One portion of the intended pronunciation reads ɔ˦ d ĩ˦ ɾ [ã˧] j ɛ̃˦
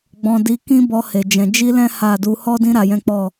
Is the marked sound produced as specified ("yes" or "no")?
no